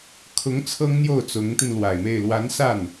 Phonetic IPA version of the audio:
kʰ ʊ˧˥ ŋ t͡sʰ ɤ˥ ŋ n̪ j o˥˩ ʊ̯ t͡s ʊ˧˥ ŋ t̪ i˧ n l w a˨˩ ɪ̯ m e˥˩ ɪ̯ l w a˧˥ n s a˥˩ n

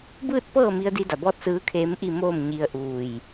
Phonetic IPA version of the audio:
b ɯː˥˨ t̚ p ɤː˥˨ m i˧ ə̯ d i˧ d a˩ b ɔː˧˥ t̚ s ɯː˧˥ kʰ eː˧˥ m ʔ i˥˨ m oː˥˨ m ɲ i˧ ə̯ ʔ uː˧˩ j

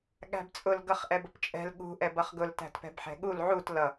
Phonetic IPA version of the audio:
ɠ æ̤ b t͡sʼ ʊ l ɡ ʌ χ ʔ ɛ b ʊ p t͡ʃʼ ɛ̤ l ɠ ṳ ʔ ɛ b ʌ χ ɡ ʊ l t æ̤ t p ɛ̤ b ħ ɛ̤ ɠ u l ʕ u t l ʌ

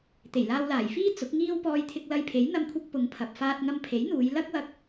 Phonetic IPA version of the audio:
t̪ e˨˩ j l aː˧ w l aː˨˩ j f iː˥ t͡s ʊ˨˥ k̚ ŋ iː˥ w p ɔː˧ j t̪ʰ ɪ˧ k̚ l ɐ˧ j pʰ e˨˥ j n̪ ɐ˥ m kʷʰ ɐ˥ k̚ p ʊ˨˧ ŋ pʰ ɐ˨ p̚ f aː˧ t̚ ŋ ɐ˧ m pʰ e˨˥ j n̪ uː˨˧ j l ɐ˥ k̚ w ɐ˧ k̚

